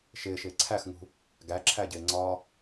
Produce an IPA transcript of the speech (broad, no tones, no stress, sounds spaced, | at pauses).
ʃ ɪː ʃ ɪː ǀʰ æ x ŋ ṳ | ɡ æ ǁʰ æ ɟ ɪː ŋ͡ǀ ɒ